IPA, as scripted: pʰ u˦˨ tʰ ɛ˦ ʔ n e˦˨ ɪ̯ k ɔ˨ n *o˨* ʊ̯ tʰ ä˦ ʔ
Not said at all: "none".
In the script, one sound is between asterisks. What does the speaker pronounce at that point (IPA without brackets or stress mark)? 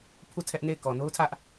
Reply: o˦